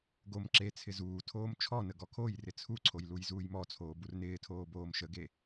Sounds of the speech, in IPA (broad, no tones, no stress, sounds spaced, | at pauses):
ɡ o m ǁ e t͡sʰ ɪ z uː tʰ oː m t͡ʃʰ ɔ n ə ɡ ɔ kʰ o j r ɪ t͡sʰ u ǀʰ o j l u j z uː j m ɔ t͡sʰ oː b u r n ɪː tʰ oː b oː m ʃ ə ɡ e